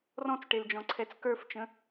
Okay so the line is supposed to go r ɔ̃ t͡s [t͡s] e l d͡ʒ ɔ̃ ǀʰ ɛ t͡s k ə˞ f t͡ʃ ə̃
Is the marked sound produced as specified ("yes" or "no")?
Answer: no